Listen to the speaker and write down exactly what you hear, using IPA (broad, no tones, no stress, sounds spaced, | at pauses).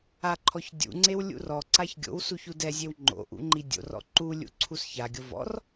a ǃʰ ɔ ç dʲ ṵ ŋ͡ǀ e w lʲ ṵ r ɔ ǀ a ç ɡʲ o̰ w s u ç u d ɛ zʲ e w ŋ͡ǃ o̰ ʔ ṵ ŋ͡ǃ i dʲ o̰ r ɔ̰ ǃ u lʲ ṵ ǀʰ u s ç a ɡʲ o v ɔ̰ r